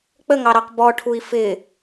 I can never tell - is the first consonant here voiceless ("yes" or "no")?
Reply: yes